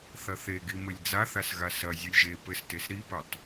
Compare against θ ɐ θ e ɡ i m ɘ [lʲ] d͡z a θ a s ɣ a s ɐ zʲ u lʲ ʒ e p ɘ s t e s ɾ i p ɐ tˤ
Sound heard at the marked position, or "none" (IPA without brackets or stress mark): lʲ